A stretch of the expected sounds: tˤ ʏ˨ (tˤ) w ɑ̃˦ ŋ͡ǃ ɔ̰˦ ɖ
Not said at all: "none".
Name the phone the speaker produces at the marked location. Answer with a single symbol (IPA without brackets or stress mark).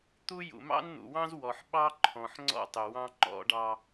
none